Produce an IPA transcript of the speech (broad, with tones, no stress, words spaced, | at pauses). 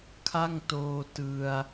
kʰa˥˩ŋtoː˧ tɯ˧a̯